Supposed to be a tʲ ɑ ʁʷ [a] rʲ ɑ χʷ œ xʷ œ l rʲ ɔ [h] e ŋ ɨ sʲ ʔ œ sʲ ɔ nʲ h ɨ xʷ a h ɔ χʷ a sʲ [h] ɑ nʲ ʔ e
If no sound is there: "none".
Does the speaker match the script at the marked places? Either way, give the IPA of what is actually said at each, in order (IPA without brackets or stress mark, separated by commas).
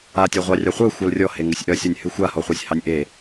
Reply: ɑ, h, h